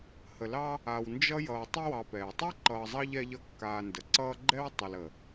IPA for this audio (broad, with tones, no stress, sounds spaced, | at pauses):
h ə˨ l ɑ˦ | a˨ w n d͡ʒ ʌ˥ j ʌː˨ tˤ ə˦ w ɑ˨ p ɛː˩ tˤ ɛ˥ ǃ ʌː˨ zˤ ɑ˦ ʎ ɛ˦ ʎ ʌ˦ kː aː˨ n d ə˩ ǀ ʌː˦ ɡ͡ǃ ɛ˥ w tˤ ə˨ l ə˩